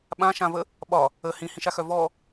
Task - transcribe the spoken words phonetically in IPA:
ɓãʃãvə | ɓɒ | ə hĩhĩʃaxœ vɔ

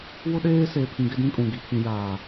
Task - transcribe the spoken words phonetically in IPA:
wʊ˦ɗeː˦ seː˨pʰĩ˨ ɡɪ˦dĩ˦kʼũ˨ ɡi˨pʰĩ˨ jaː˨

